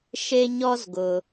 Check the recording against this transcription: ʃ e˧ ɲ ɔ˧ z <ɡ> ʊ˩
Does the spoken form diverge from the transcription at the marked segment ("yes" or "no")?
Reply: no